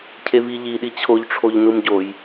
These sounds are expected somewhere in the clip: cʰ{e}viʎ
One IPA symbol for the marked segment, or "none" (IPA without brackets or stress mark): e